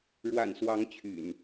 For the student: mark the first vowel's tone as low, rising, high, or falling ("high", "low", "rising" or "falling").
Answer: low